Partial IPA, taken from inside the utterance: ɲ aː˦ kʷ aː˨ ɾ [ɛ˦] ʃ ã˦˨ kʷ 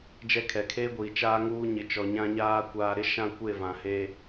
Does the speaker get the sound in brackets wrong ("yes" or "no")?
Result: yes